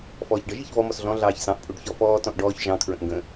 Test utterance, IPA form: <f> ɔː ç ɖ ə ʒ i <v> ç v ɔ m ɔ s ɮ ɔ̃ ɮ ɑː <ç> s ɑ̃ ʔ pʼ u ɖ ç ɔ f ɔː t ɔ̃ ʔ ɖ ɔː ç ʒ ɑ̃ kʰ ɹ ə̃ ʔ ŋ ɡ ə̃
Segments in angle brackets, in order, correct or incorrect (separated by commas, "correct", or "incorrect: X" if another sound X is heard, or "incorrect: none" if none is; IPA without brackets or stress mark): correct, incorrect: none, correct